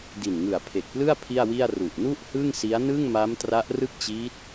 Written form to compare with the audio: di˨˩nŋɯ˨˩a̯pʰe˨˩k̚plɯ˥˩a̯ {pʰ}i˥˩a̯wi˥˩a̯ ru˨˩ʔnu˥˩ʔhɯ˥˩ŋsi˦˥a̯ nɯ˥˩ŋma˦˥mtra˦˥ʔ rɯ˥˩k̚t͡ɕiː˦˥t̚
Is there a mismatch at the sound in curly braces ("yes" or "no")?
no